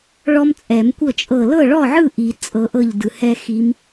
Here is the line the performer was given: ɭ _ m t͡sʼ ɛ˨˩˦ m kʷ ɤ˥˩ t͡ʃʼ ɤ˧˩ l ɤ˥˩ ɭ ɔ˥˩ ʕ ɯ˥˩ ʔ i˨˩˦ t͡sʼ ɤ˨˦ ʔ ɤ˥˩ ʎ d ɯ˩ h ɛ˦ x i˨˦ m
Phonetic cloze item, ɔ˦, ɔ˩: ɔ˦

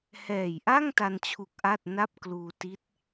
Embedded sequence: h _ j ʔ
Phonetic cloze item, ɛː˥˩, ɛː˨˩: ɛː˨˩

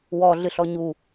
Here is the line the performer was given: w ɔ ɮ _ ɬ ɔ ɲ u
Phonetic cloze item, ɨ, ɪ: ɨ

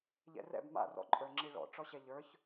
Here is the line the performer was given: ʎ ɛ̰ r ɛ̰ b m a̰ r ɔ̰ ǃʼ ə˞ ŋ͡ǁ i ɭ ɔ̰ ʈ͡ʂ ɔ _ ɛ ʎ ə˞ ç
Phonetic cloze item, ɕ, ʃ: ɕ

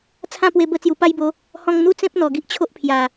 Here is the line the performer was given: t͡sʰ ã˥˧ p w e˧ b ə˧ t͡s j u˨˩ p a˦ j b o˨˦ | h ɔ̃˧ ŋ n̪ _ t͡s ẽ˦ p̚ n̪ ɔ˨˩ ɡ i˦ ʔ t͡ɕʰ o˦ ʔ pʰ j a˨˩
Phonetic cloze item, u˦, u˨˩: u˦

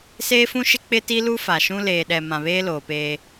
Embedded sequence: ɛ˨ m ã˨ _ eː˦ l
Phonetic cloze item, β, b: β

